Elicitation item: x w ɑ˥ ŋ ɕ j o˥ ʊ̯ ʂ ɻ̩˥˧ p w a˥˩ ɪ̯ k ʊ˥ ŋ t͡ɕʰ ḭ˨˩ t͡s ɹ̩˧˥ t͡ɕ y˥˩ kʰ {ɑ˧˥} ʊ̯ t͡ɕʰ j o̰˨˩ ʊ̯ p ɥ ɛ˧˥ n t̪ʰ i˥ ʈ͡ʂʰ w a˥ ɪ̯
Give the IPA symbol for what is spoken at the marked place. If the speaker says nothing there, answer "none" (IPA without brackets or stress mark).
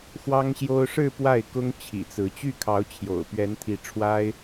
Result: ɑ˧˥